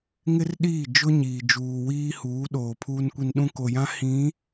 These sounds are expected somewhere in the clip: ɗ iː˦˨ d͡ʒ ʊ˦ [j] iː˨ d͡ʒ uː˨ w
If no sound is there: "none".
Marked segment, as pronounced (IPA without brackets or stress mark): ɲ